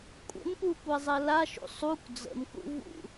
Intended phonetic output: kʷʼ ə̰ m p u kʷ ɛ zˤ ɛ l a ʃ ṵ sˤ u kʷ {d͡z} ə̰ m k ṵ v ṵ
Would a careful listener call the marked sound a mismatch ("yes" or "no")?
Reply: no